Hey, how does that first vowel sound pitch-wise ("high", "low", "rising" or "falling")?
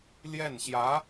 falling